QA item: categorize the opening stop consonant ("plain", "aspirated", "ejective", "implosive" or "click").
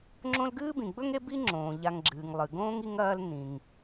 click